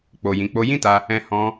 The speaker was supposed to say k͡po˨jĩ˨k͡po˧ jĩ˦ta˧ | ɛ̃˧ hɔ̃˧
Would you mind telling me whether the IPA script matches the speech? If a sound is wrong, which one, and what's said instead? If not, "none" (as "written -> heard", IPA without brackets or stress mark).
none